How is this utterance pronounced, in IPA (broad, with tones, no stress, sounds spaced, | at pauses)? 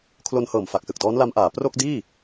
kʰ l o˧ n h ɤː˨˩ m f a˨˩ k̚ s ɯ˨˩ k̚ d ɔː˦˥ n l a˦˥ m ʔ aː˩˦ p r o˥˩ k̚ d iː˥˩